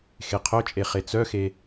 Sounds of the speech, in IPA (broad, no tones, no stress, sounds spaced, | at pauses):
x e qʰ œ t͡ʃʼ e χ e t͡s œ x e